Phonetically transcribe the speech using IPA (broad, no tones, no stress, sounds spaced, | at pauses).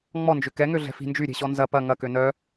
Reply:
ŋ͡m ɔ n d͡ʒ ʏ k ɛ ŋ ø ɮ ɛ̤ f i̤ n d͡ʒ y ɾʲ e̤ ɕ ɔ n z ɐ p ɐ ŋ ɐ k ø n œ